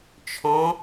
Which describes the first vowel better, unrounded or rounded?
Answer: rounded